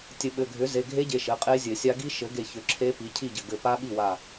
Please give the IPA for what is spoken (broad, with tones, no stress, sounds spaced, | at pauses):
tʲ ɘ˨˩˦ ɓ ɘ˩˧˩ ɡʱ ʏ˩˥ z e˩˧˩ ɡʱ e˦˥ ɟ e˩˧˩ ʃ ɘ˩˧˩ qʼ e˦˥ zʲ ɘ˨˩˦ sʲ a˦˥ ɡ i˦˥ ʃ ɘ˩˥ ɡ e˧˩ ç ʏ˩˥ ǁʰ e˦˥ p i˩˥ cʰ i˥˩ ɟ ɘ˧˩ ɡ ɘ˧˩ p a˦˥ ɓ i˥˩ w a˧˩